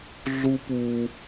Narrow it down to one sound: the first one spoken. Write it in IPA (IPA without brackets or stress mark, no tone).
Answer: ɮ